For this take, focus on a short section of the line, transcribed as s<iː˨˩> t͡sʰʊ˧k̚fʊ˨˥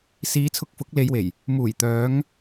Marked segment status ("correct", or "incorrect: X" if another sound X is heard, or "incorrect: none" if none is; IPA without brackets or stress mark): incorrect: iː˨˧